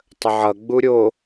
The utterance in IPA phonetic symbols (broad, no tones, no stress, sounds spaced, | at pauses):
tˤ ə ʕ ʌ ɡ͡b u ɾʲ o